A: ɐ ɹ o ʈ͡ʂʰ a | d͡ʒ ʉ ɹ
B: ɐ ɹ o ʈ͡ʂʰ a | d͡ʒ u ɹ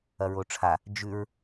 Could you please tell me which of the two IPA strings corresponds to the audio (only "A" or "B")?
A